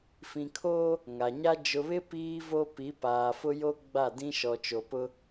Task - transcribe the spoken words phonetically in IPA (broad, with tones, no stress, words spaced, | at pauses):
fĩ˨kʰoː˦ | ŋa˨ɲa˦ d͡ʒʊ˨βɪ˦ piː˦ vo˦ pi˨˦paː˨fʊ˦jo˦ ɡ͡ba˦˨ dĩ˦ʃɔ˨t͡ʃo˨pʊ˦